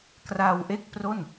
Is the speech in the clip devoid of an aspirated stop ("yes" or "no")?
yes